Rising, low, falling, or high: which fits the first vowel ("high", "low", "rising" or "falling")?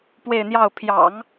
falling